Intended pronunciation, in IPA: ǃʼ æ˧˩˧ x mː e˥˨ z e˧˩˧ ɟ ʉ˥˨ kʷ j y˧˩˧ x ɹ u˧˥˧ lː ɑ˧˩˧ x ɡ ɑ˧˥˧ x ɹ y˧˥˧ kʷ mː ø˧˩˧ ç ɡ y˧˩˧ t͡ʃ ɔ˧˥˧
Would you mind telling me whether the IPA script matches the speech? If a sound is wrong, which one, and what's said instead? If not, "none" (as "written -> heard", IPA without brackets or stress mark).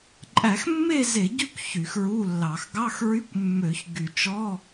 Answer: j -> ç